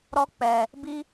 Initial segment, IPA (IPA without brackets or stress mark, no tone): ɾ